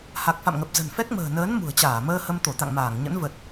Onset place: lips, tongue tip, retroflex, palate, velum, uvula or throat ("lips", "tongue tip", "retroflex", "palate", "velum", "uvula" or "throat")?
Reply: throat